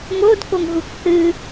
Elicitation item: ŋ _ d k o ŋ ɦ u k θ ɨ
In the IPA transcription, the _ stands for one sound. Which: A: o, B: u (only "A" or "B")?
A